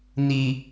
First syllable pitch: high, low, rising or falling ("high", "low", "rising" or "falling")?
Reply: low